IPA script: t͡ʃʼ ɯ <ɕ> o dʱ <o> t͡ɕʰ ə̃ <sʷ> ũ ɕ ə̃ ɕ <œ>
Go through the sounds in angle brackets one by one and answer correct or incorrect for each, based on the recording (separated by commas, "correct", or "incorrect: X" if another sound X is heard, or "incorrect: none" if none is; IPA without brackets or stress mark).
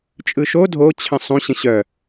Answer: incorrect: ʃ, correct, incorrect: sˤ, correct